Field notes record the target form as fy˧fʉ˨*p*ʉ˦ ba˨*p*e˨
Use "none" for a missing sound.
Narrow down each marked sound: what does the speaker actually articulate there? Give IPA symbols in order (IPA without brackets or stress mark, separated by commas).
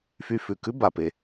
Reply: k, p